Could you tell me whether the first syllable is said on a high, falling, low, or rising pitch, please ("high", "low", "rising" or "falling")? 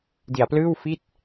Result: low